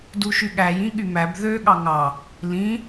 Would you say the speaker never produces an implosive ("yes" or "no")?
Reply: no